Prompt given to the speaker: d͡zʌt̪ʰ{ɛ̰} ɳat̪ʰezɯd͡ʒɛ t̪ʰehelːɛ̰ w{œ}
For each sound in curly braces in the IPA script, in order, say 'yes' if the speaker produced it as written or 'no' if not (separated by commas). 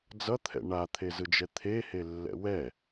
yes, no